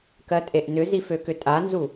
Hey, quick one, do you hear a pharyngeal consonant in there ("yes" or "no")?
no